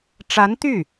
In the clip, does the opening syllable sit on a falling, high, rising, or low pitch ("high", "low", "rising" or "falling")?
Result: rising